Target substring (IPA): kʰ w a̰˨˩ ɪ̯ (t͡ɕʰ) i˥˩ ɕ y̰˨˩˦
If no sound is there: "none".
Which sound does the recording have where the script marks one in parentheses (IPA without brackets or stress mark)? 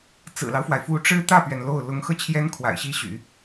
ɕ